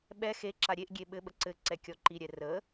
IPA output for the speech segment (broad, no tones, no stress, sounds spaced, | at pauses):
ɓ ɛ x e ǁ a ɾʲ e ʔ ɡʲ e ɓ ɘ ɓ ə ǀ ɘ ǀ ɛ kʲ ɔ ǃ i ɾʲ ɛ r ə